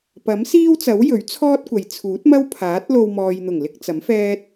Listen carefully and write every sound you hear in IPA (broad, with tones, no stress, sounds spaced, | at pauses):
p ɐ˨˥ m s iː˥ w t͡s ɐ˨˥ w j ɵ˨˥ ɥ t͡sʰ ɔː˥ t̚ kʷ ɐ˨˧ j t͡sʰ uː˨˥ t̚ m ɐ˥ w pʰ aː˨˥ t̚ l o˧ w m ɔː˨ j n̪ ʊ˨˩ ŋ l ɪ˧ k̚ t͡s ɐ˨˥ m f ɛː˥ t̚